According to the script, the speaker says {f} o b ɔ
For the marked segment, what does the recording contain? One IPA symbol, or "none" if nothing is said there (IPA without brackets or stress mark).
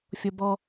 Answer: fʲ